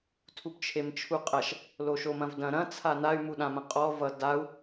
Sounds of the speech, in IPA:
tʰubt͡ʃʰemt͡ʃʰuqʼɐʃ | loʃomɐ̃vdɐ̃ ɾɐ̃ t͡sʰanay̯ muɗãmɐ̃qʼɔ vʌ dau̯

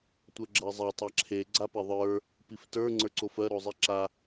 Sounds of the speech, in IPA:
tʷɜɡ͡ǁɜzˤe tˤaǁʰe ɡ͡ǀapeðˤə˞ | piftə˞ ŋ͡ǀə˞ǀofɜ ɾozˤiǁa

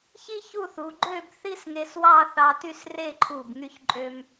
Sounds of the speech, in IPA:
çi˥çu˥˧θu˩˧ ɡ͡ǃø˥˧b θi˥sŋe˧swɑ˥˧ θɑ˧ty˥˧sre˥˧ǃʰu˧˩b ŋy˧çǃʼø˧m

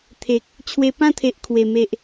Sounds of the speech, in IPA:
t̪ʰe˨k̚ | t͡ɕʰwe˧pã˥˧t̪ʰe˨ʔ kʰwe˨˩ me˨ʔ

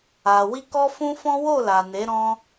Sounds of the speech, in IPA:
a˨ wi˧kɔ˦fũ˦fɔ̃˦ wo˦˨la˨ne˨˦ ɾɔ̃˦

